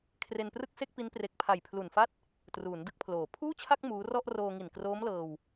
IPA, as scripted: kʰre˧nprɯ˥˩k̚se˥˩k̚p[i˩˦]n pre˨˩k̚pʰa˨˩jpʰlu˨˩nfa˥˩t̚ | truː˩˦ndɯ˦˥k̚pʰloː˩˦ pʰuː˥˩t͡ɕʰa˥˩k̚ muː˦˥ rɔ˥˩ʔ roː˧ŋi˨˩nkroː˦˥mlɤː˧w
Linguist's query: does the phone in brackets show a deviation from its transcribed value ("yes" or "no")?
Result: yes